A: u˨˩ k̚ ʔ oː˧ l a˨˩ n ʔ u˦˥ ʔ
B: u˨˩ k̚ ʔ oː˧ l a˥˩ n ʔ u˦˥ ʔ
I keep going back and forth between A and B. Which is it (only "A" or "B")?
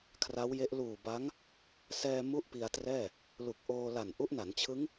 A